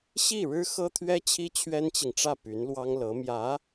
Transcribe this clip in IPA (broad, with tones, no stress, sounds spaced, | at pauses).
ɕ i˥˩ ɻ ɻ̩˥ x ɤ˥ t̪ʰ ɥ ɛ˥ t͡ɕʰ i˥ t͡ɕʰ ɥ ɛ˥ n t͡ɕ i˨ ŋ ʈ͡ʂ ä˥˩ p y˧˥ n l w ɑ˥ ŋ l ɤ˧˥ m j ä˧˥